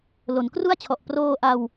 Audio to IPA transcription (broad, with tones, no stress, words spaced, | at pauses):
lo˩˦nkru˥˩a̯t͡ɕʰɔ˨˩ʔ proː˧ʔa˧w